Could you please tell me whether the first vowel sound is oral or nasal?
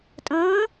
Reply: nasal